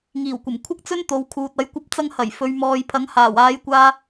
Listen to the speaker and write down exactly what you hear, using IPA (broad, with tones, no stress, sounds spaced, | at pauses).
ŋ iː˨˩ w kʷ ɐ˨˩ m kʷʰ ɪ˥ k̚ t͡s ɵ˥ n t̪ o˨ w kʰ uː˨ t̚ ɐ˨˧ j kʷ ɐ˧ p̚ t͡s ɐ˧ ŋ h ɐ˨˩ j f ɵ˨˧ ɥ m ɔː˨ j pʰ ɐ˨˧ ŋ h aː˨˩ w aː˨˧ j kʷ aː˧